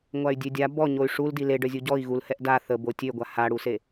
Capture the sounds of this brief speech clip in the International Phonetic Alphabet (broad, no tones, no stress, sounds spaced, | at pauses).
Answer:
ŋʷ a y̯ dʲ ø dʲ a b ɔ ɲ o y̯ ʂ u l d i l e ɖ œ zʲ u ɟ ɔ i̯ ɣ u l h ɛ ʔ d a θ ə b o tʲ ø ɡʷ a h a ɽ u s e